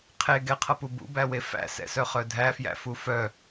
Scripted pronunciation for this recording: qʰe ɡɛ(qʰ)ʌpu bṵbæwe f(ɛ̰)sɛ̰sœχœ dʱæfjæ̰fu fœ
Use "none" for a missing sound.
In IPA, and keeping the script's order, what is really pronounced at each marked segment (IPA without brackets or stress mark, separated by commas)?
qʰ, æ̰